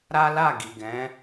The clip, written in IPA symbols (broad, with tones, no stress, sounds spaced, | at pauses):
ɾ a˦ l a˦˨ ɡ i˨ ɡ ɛ̃˨˦